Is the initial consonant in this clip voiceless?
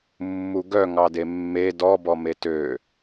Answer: no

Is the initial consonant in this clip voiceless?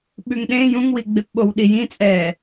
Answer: no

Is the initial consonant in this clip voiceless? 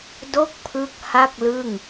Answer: no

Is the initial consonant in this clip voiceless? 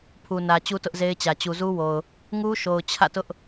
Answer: yes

